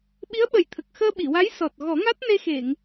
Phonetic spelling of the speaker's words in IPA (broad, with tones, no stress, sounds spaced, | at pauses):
ɓ i˧˥ ə̯ ɓ ə˨˩ j t̪ʰ ə˨˩ k̚ x əː˧ ɓ i˨˩˨ w a˧˥ j s ɔ˨˩ t̚ ɣ ɔ˨˩˦ ŋ a˦˥ t̚ n e˧ x e˨˩˨ ŋ